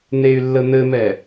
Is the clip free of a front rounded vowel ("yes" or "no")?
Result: no